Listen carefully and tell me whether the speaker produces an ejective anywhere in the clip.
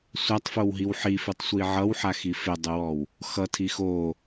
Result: no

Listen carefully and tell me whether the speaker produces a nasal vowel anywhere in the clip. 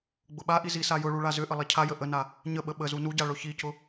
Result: no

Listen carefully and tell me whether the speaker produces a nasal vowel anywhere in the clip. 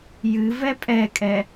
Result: no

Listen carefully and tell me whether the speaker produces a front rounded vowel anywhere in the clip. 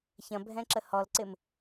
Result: no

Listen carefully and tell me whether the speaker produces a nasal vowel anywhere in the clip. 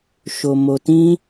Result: yes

